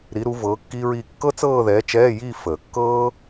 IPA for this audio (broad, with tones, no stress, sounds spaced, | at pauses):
ɾ i˨˥ ɾ u˨˥ v ɤː˨˥ kː i˥ ɹ iː˥˧ kː ɤ˥ t͡s ɤː˥˧ ð ɛː˨˥ t͡ʃ ɛː˧˥˧ j iː˥˧ f əː˨˩˦ kː ɤː˥